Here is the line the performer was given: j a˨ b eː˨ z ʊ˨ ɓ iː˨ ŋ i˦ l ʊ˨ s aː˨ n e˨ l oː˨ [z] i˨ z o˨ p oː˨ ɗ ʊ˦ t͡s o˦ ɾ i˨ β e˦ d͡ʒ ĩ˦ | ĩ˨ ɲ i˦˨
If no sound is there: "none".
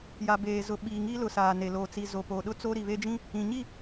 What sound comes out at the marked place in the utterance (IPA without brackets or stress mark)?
t͡s